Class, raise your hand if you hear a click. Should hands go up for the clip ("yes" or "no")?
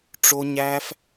no